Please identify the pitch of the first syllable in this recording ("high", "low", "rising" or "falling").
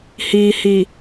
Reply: low